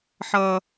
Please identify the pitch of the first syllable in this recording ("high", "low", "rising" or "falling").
high